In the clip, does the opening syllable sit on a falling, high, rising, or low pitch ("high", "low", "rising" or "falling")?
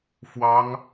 high